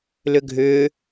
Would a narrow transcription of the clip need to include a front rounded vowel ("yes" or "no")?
yes